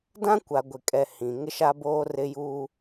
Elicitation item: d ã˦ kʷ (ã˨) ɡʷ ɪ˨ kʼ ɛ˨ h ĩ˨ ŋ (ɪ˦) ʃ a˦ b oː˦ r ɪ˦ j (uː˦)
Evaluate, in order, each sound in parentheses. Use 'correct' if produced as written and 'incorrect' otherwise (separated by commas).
incorrect, correct, correct